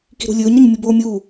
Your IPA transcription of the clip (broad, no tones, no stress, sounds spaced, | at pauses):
k i̤ ɾ ṳ lʲ ɵː ɲ ɾ ɵ ɲ mʲ u b oː mʲ uː